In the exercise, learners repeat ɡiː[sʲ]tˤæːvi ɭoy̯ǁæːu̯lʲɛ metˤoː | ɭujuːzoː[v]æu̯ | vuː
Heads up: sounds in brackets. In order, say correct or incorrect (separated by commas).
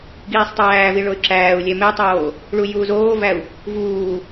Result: incorrect, correct